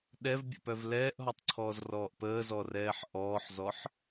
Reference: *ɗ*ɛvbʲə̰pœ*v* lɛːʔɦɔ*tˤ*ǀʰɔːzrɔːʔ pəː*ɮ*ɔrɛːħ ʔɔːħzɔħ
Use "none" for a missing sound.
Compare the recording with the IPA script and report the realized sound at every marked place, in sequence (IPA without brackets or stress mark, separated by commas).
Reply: ɗ, v, tˤ, z